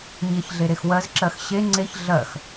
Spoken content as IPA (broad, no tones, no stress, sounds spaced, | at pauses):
ɲ e ç ɮ e ɾ e x w ɜ z ǁ ɜ x ɕ e ŋ͡ǀ e ç ɮ ɜ x